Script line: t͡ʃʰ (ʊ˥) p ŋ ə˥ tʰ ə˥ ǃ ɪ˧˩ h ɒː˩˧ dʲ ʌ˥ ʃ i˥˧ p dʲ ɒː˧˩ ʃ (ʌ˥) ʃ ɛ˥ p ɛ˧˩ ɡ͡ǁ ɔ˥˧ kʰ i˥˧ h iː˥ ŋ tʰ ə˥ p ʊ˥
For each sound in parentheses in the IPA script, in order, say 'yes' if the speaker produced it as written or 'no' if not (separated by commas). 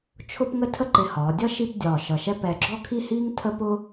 yes, no